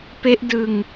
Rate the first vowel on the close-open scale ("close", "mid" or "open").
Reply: mid